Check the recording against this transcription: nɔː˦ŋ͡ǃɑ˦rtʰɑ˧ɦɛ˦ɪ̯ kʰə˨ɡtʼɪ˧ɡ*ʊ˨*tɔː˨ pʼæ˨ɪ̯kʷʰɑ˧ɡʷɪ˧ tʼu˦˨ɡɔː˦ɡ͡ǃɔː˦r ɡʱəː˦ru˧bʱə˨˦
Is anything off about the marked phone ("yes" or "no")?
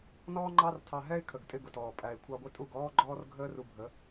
no